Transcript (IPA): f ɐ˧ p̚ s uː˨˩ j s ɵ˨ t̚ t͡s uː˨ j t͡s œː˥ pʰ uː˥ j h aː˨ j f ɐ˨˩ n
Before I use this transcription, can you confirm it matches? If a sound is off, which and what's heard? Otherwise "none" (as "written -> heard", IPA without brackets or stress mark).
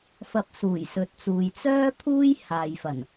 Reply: ɵ˨ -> ɵ˨˥